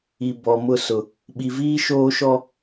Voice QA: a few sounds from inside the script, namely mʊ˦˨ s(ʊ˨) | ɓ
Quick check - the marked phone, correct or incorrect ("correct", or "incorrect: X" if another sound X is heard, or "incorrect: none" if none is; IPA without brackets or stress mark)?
correct